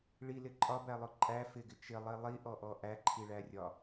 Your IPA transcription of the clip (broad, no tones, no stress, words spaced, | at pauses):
ɭilɪ ǃʼɒbælˠʊ ǃʼæ fɪɡɪ t͡ʃɪlˠi lˠiʔɔʔɔ ʔæǃʰiɭærʲɒ